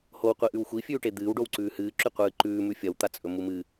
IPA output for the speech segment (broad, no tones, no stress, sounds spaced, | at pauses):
h o w qʷ i ʔ ʉ w xʷ i fʲ ʉː ʈ e d̪ ɨː w ɖ o w ǀ ʉː h ɨː ǁ ʉ qʷ ɨː ǃ ʉː m ʉ fʲ ɐ w t̪ a t͡sʼ ɵ m u m ɨ